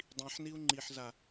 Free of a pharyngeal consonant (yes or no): no